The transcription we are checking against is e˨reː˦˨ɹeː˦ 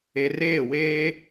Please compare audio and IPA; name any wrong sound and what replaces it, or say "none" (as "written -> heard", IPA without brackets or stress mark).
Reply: ɹ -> w